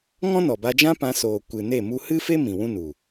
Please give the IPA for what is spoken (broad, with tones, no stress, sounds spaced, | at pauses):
ŋ ɔ̃˦ n ɔ˨ b a˧ d͡ʒ ã˦ p ã˧ s oː˨ kʷ ɨ˨ n e˦˨ m u˧ h ɨ˦ f e˦ m ĩ˨ w ũ˦ n u˨